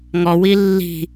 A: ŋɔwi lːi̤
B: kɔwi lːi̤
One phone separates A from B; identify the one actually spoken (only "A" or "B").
A